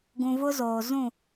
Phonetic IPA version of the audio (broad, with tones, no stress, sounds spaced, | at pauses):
ɡ ũ˨ v ʊ˦ z oː˨ z ũ˦˨